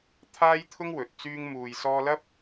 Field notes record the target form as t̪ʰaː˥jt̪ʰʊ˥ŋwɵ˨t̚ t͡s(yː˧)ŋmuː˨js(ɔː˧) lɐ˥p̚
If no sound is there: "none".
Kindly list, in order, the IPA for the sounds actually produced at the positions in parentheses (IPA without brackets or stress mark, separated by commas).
yː˧, ɔː˧